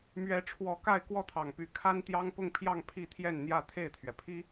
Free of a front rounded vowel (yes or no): no